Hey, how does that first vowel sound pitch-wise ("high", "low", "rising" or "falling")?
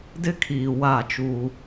high